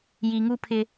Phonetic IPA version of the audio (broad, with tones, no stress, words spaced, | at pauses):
ji˨ŋu˦ pʰɪ˦